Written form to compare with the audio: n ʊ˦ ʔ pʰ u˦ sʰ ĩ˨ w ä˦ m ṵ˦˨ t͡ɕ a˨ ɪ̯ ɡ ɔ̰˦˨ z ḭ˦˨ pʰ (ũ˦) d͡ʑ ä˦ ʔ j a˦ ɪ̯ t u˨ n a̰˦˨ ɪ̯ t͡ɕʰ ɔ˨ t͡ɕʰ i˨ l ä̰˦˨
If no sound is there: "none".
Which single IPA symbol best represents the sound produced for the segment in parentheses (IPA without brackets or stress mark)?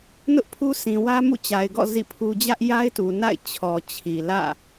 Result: u˦